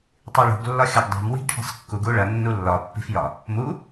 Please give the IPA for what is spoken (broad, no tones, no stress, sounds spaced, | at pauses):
tˤ i ɭ ṳ ɡ lː ɒ xʲ ɒ ɡ dˤ o̤ m w i̤ ɡ ʈʰ i̤ sˤ kː u ɡ u ɭ ɐ nː u lː ɒ pː i̤ f j ɒ | m u